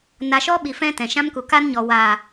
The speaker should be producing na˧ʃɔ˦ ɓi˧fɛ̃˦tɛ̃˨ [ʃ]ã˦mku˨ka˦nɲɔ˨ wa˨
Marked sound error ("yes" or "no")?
no